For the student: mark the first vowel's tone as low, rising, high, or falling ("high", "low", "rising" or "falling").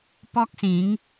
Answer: high